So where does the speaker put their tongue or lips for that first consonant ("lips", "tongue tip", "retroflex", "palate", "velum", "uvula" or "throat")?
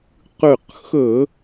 uvula